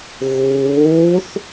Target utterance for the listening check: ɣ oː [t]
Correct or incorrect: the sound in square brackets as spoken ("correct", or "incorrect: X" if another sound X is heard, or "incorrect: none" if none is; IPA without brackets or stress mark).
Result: incorrect: θ